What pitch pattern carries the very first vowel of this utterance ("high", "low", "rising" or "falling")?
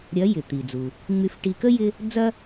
rising